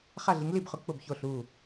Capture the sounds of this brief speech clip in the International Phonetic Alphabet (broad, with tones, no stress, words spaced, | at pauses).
χa˥˩ɮi˩˥ŋli˥˩bχʊ˩˥ k͡pʊ˥˩bço˥˩ɬu˥˩